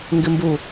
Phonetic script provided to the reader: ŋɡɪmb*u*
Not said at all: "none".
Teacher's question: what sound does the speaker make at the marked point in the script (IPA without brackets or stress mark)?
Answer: u